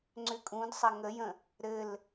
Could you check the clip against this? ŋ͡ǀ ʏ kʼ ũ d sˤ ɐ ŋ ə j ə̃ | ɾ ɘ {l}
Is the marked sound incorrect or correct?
correct